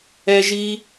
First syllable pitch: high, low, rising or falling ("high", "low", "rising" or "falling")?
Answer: high